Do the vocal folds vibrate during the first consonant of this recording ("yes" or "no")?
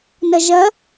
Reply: yes